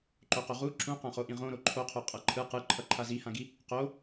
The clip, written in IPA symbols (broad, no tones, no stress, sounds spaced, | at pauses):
ǃ o q o ʁ u ǁ ũ q ã χ o ʔ ĩ ʁ õ ɾ o ǃʰ o qʰ o qʼ ʌ ǃʰ ɯ q ɯ ǃʰ ʌ ǃʰ a z i h ã ɡ i | q o